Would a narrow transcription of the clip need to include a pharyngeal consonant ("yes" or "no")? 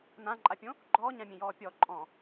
no